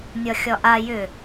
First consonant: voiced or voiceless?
voiced